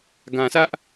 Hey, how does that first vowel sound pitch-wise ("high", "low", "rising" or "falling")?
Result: low